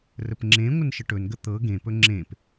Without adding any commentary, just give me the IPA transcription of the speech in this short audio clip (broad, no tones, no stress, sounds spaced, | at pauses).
r ə p ŋ͡ǁ ẽ ŋʷ ə n ʃ ə ʈ ɵ n ɡ ə t̪ ɤ ɡ ẽ p ɵ ŋ͡ǁ ẽ p